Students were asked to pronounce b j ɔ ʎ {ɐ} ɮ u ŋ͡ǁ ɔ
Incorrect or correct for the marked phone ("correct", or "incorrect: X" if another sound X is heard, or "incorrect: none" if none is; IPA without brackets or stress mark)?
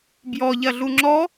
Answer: correct